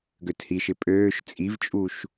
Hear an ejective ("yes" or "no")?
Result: yes